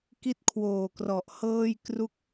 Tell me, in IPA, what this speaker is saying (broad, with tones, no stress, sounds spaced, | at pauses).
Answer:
k i˥˩ t̚ kʰ w oː˨˩ k r ɔ˨˩ ʔ h ɤː˥˩ j k r u˥˩ k̚